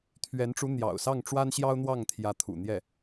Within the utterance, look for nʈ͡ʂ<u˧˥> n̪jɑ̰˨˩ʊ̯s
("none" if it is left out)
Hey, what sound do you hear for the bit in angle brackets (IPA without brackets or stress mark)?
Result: u˧˥